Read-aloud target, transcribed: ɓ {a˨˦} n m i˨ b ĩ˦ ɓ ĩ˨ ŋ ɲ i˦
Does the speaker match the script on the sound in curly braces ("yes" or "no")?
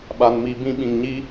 no